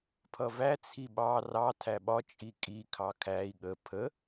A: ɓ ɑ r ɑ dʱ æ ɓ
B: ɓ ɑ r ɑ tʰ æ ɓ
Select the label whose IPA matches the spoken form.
B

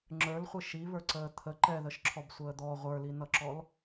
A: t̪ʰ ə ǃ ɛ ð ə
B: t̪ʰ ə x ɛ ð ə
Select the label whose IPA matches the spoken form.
A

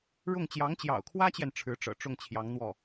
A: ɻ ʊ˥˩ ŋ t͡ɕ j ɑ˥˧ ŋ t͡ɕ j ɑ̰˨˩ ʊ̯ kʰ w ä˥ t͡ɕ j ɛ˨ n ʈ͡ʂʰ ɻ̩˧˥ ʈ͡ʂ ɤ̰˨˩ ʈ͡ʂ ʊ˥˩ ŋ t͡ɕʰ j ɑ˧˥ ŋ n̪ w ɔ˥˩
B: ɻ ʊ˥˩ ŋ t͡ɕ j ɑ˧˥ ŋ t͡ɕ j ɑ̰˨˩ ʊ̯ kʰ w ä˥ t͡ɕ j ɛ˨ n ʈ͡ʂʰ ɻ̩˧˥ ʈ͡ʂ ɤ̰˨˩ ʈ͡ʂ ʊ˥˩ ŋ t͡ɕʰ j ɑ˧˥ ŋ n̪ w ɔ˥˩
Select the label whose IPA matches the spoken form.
B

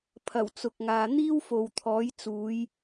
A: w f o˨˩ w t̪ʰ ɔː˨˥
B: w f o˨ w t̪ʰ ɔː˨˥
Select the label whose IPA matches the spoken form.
B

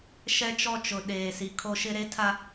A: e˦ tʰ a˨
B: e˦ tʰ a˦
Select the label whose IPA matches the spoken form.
B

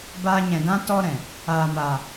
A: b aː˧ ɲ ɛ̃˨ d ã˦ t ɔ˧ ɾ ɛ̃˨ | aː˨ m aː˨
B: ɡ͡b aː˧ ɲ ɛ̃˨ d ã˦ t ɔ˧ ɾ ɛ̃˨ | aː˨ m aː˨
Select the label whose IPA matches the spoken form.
A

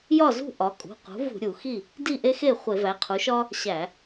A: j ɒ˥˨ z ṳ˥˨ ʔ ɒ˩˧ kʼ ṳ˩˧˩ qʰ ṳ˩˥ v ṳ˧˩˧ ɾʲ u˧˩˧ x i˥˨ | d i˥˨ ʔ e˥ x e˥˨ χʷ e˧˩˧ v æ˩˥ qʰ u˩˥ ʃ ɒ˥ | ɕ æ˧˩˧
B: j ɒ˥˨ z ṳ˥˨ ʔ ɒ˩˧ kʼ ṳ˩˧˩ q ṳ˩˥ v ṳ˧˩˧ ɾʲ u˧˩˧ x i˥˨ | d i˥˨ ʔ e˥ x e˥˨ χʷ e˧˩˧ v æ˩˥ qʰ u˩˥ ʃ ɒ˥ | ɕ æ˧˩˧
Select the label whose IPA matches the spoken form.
B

